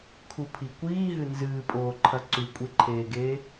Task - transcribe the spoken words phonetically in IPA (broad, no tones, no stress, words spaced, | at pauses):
kʰupʰikʷiː ɦɨnzɨːpʼoːǃʰɐ ǀʉkʷʼeǃʰeːɡeː